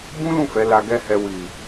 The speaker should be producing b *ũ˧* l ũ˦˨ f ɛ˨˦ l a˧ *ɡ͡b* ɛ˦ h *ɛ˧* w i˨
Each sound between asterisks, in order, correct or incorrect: incorrect, incorrect, correct

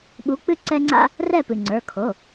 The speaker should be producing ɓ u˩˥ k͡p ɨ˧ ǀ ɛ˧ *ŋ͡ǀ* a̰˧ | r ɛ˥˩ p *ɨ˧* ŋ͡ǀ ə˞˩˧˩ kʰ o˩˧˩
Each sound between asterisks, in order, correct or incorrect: correct, incorrect

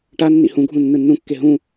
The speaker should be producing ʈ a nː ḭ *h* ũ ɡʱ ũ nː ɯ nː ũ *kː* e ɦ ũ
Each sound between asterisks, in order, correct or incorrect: correct, correct

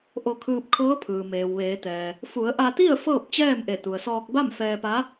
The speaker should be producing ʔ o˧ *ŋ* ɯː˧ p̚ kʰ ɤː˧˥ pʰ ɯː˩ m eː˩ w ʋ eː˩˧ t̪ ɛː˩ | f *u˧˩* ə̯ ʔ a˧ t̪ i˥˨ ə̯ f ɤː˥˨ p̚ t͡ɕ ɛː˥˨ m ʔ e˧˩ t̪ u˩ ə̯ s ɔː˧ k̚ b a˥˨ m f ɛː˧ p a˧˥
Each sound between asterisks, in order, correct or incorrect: incorrect, incorrect

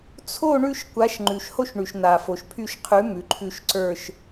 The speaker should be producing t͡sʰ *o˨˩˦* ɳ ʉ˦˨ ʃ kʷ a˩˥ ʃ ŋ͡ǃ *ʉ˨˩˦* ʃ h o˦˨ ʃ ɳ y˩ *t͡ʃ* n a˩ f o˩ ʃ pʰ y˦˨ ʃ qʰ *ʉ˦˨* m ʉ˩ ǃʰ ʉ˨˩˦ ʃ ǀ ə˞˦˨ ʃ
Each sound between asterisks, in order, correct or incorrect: incorrect, incorrect, incorrect, incorrect

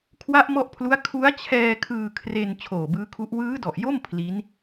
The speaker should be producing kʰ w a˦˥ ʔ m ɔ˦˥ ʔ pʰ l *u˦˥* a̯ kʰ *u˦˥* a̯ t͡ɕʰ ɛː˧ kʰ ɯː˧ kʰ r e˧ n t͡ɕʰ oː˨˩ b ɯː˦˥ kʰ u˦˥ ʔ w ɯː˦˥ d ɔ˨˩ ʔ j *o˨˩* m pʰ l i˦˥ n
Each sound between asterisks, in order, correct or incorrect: correct, correct, incorrect

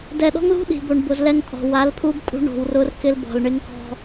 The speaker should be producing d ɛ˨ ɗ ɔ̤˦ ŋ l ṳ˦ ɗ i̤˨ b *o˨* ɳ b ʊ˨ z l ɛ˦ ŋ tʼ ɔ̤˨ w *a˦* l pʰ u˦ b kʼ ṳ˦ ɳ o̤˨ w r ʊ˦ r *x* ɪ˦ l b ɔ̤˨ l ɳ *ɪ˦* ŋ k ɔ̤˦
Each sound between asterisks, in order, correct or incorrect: correct, incorrect, incorrect, correct

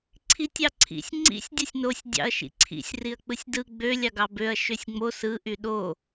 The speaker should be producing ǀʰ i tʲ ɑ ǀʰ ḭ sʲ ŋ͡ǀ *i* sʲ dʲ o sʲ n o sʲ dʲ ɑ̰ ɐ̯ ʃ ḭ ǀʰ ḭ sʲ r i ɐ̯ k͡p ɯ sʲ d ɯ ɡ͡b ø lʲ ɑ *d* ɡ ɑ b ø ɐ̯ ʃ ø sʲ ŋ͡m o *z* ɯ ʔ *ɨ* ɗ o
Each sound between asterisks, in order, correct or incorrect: incorrect, incorrect, incorrect, incorrect

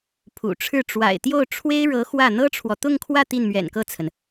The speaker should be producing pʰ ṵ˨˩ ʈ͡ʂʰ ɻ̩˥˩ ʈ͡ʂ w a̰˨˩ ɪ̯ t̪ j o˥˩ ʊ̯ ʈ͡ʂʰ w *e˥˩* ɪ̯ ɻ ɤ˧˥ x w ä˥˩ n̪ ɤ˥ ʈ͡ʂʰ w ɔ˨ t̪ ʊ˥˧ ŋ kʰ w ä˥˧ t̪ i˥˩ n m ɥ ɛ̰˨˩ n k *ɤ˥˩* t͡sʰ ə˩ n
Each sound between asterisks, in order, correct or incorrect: incorrect, correct

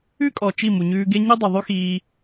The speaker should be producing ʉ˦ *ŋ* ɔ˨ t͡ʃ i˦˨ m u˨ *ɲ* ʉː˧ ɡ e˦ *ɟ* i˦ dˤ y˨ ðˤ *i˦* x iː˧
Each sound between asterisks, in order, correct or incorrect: incorrect, correct, incorrect, incorrect

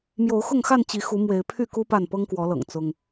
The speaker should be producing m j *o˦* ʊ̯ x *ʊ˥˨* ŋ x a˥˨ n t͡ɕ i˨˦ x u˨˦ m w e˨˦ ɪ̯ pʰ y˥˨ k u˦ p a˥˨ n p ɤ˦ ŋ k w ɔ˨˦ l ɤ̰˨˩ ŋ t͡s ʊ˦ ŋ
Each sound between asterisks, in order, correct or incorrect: incorrect, correct

